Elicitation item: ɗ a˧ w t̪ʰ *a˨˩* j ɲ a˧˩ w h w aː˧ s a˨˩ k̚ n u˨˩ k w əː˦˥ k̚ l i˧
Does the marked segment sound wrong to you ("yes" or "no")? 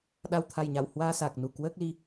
no